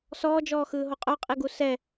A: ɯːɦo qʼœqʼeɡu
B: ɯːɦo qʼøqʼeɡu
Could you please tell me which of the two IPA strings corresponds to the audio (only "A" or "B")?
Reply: A